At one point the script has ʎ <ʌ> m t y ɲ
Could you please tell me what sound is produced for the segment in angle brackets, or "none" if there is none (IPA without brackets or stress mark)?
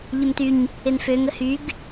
ə